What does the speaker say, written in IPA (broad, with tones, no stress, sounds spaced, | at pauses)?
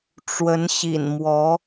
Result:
ʈ͡ʂ w ə˧˥ n ɕ ḭ˨˩ n m w ɔ˧˥